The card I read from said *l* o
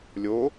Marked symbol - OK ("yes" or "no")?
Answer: no